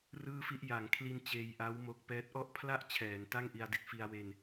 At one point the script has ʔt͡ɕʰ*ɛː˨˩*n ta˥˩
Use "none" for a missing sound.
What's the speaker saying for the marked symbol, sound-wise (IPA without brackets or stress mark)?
ɛː˩˦